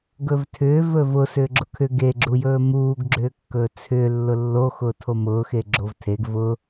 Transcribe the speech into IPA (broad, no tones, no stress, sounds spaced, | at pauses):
ɡ ɵ v tʰ ʏː v ɵ v ʊ s ʏː ɡ͡ǁ ʊ kʰ ʏ ɡ e ɡ͡ǁ u j ɵː m uː ɡ ɡ͡ǁ ʏː kː ɵː t͡sʰ ʏː lː ʊ lː o x ʊː tʰ o m ʊː x e ɡ͡ǁ o v tʰ e ɡ v ʊ